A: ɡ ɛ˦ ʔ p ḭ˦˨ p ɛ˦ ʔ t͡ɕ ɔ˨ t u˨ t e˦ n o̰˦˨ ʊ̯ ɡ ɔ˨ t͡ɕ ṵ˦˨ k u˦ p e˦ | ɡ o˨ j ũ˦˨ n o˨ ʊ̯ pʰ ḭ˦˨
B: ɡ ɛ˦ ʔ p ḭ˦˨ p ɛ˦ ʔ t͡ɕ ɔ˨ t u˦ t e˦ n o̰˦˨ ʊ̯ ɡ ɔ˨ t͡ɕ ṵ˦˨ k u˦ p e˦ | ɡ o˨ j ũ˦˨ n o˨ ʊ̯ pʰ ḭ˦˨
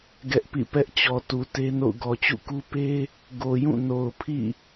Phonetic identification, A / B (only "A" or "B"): A